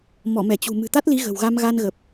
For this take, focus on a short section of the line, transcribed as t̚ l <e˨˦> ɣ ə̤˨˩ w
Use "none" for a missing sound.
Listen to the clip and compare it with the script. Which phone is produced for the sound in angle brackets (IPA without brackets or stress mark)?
i˨˦